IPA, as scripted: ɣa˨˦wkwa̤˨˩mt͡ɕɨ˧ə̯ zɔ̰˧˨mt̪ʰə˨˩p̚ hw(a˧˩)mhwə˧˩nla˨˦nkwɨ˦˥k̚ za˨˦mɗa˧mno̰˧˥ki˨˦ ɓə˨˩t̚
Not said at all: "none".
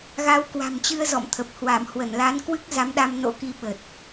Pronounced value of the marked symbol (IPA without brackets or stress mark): a˧˩